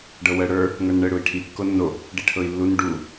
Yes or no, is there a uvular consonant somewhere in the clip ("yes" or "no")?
no